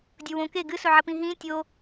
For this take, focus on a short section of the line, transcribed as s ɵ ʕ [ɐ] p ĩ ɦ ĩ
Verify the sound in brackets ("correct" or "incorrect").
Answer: correct